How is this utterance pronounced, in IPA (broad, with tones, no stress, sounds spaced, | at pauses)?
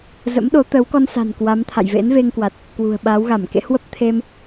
z ə̰˧˥ m ɗ o˨˦ t̪ ə˨˦ w k ɔ˧ n s a̤˨˩ n k w a˨˦ m t̪ʰ a̰˧˨ j v ḛ˧˥ n v e˧ ŋ k w a˨˩ t̚ | k w ṳ˨˩ ə̯ ɓ aː˨˦ w ɣ a˧˩ m k ḛ˧˥ h w ə˦˥ p̚ t̪ʰ e˧ m